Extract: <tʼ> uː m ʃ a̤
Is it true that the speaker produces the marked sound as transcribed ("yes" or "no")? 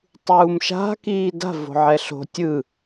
no